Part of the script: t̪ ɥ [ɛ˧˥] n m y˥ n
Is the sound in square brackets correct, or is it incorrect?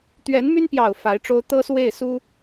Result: correct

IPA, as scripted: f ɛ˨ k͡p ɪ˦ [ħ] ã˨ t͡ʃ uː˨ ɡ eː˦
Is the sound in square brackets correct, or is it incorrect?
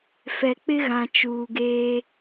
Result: incorrect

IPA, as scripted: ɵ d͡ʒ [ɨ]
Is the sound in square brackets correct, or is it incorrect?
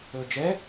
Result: incorrect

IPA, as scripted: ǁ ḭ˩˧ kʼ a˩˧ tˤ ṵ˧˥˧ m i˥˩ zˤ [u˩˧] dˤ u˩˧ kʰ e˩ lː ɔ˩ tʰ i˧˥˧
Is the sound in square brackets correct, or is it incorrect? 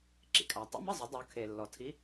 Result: incorrect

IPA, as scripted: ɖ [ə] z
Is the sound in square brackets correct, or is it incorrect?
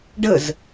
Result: correct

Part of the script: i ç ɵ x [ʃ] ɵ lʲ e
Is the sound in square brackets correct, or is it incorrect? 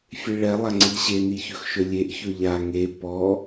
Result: correct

